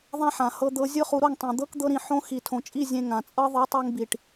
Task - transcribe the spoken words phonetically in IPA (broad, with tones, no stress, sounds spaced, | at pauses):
ðˤ ã˦ ħ ã˨ h ɤ˧ d̪ ɤ˧ zʲ ɯ˦ χ u˧ ɾ o˦˨ ŋ tˤ ẽ˨ d̪ ɤ˦ k d̪ ɤ˦ ɾ ĩ˧ ħ õ˦ x i˨ tʰ õ˨ t͡ʃʼ i˦˨ zʲ ẽ˧ ŋ ã˨ t͡sʼ ɤ˦ ðˤ ɯ˨˦ tˤ o˧ ŋ b i˨ ʈ